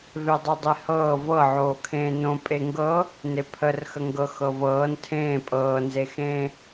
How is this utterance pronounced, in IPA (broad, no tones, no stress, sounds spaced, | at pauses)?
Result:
v e dˤ ɤ dˤ e h ɤː v ɤ ʕ oː kʰ ẽː n õ pʼ e ŋ ɡ ɤ | n e pʰ ə r x ə ŋ ɡ ɤ x ɤ v ɤː n tʰ ẽː pʼ ɤː n z e x ẽː